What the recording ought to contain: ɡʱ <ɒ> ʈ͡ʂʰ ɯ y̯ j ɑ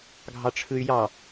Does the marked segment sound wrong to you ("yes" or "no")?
yes